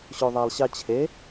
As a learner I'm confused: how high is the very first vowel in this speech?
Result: mid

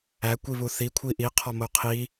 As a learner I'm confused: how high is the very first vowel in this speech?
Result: low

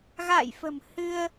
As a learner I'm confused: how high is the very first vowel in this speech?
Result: low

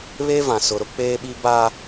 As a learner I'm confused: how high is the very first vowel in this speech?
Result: mid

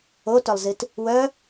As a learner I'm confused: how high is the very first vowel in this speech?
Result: mid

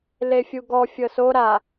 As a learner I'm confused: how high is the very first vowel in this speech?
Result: mid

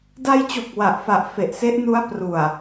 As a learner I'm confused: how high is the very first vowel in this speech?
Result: low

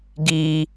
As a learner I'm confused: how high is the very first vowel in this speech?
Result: high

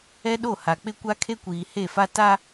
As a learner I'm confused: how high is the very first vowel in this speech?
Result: mid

